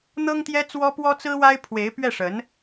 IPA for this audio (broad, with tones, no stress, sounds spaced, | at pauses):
n̪ ɤ˥ ŋ t̪ j ɛ˥ t͡s w ɔ˥ p w ɔ˥ t͡s ɹ̩˥ w a˥ ɪ̯ pʰ w e˧˥ ɪ̯ p ɥ ɛ˥˩ ʂ ə˧˥ n